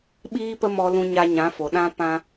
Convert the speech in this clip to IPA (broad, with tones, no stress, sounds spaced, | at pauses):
ɓ iː˦ p ə˦ m ɔ˧ l ũ˧ ɲ a˧ ɲ ã˨˦ f o˨ ɗ ã˧ p ã˦